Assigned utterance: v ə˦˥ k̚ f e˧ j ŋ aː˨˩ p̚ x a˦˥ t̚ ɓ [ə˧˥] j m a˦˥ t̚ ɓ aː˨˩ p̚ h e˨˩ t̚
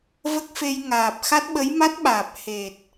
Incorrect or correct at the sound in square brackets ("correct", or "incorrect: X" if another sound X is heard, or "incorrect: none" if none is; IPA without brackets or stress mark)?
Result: correct